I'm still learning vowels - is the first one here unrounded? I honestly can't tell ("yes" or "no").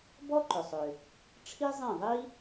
no